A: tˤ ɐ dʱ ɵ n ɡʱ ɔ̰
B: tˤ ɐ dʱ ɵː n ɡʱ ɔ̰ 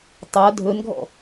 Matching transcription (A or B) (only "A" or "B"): A